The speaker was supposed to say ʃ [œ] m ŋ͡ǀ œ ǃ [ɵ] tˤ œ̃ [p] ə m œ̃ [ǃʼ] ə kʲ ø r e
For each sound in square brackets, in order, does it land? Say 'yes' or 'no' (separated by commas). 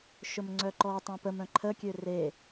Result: no, no, yes, no